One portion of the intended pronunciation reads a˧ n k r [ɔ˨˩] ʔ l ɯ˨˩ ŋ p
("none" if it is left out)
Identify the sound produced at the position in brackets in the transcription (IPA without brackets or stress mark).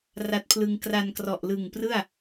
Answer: ɔ˨˩